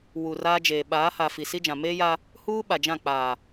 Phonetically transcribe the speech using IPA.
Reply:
w u˨ r aː˦ d͡ʒ eː˨ ɓ aː˨˦ h a˨ f i˨ s i˦ d͡ʒ ã˨ m eː˦ j a˦ | h uː˦ ɓ a˨ d͡ʒ ã˦˨ k͡p aː˨

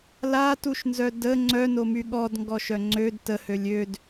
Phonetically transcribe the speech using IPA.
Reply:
l a t u ʃ n z œ d ə ŋ͡ǀ œ n o m y ɠ ɔ d ŋ ɡ ɔ ʃ œ ŋ͡ǀ ø d t ə h ø lʲ ø d

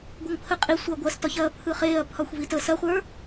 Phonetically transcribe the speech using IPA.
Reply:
ɡʷ ɐ ŋ pʰ ə qʼ i sʷ ɐː ɡʷ ɐ s t ɒ ç ɐː pʰ ɯ χ eː ɐ̯ pʰ ɒ xʷ v i t ə s ɐ χʷ ə˞

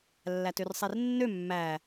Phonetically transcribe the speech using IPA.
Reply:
lː æ t ø r sˤ e r nː ø mː æ

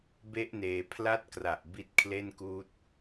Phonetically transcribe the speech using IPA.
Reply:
b e˦˥ ʔ n eː˩˦ pʰ l a˥˩ t̚ k r a˨˩ ʔ b i˦˥ t̚ kʰ l e˥˩ n k uː˦˥ t̚

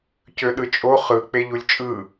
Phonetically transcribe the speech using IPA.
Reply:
c ø ɗ ɯ t͡ʃʼ o χ ɯ k͡p e ʎ u lʲ t͡ʃʼ ɯ

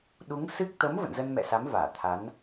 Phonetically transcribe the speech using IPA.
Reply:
ɗ u˨˦ ŋ s ɨ˦˥ k̚ t̪ ə˨˦ m v ə̰˧˨ n z ə˧ n m ɛ̰˧˨ s a˨˦ m v aː˧˩ t̪ʰ a˨˦ n

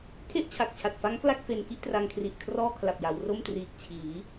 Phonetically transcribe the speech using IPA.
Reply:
kʰ e˥˩ ʔ t͡ɕʰ a˨˩ k̚ t͡ɕʰ a˨˩ t̚ f a˦˥ ŋ k l a˥˩ k̚ f e˧ n k i˥˩ ʔ t r a˧ ŋ kʰ r i˨˩ ʔ kʰ r ɔː˥˩ kʰ l a˨˩ p̚ j a˩˦ w r o˥˩ m t r iː˨˩ k̚ t͡ɕʰ iː˩˦

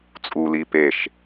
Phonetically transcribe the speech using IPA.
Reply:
t͡sʼ u l i p e ʃ

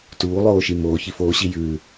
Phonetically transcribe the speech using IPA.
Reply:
t uː lˠ oː ʃ i m oː ç i f oː ɕ i j ʉː

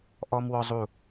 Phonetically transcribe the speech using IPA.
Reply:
ʔ ɔ˧ m w ɔ˧ zˤ u˧˩

